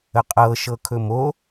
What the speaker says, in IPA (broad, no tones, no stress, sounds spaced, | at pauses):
ə qʼ ɤ ʃ ɤ kʰ ɵ m o